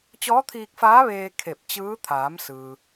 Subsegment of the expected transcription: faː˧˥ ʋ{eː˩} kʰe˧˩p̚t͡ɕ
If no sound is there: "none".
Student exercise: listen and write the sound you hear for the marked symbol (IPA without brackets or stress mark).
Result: eː˧